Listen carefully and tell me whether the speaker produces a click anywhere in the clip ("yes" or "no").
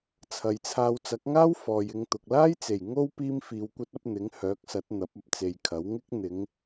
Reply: no